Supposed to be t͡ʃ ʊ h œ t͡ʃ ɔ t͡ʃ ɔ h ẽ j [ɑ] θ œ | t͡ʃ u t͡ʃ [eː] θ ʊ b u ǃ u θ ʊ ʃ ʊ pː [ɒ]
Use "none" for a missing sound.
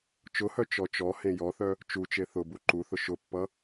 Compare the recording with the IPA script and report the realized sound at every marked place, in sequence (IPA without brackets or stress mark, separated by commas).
ɔ, e, ʌ